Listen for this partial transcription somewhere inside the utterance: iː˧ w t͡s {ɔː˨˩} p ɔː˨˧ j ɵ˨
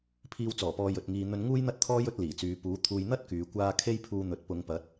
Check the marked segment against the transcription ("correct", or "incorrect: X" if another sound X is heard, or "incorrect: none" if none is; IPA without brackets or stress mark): correct